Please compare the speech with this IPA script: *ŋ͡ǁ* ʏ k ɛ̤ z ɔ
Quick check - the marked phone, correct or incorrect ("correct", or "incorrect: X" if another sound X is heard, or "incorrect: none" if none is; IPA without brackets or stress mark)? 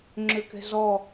correct